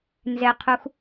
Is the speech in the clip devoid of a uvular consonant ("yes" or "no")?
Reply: no